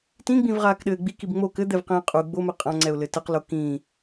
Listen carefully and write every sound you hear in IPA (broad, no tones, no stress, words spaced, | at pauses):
tĩɡ͡bĩvʁaːkɗɘː ɡ͡bikib ŋ͡mo kɘd̪ɛvqĩː qʼu ɡ͡bomɛ qʼãŋ͡ǀɛʊ̯lɘ tɘqlo kĩː